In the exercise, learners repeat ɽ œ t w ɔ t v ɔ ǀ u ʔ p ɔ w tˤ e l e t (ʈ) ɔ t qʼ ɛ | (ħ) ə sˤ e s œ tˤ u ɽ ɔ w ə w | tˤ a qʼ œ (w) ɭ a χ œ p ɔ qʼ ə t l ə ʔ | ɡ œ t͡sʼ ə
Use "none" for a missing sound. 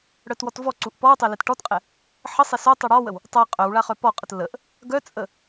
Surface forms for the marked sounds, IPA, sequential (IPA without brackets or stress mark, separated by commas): ʈ, ħ, w